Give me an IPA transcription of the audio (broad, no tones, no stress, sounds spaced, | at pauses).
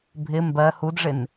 bʱ ɪ m b ɜ h u d ʐ ɪ n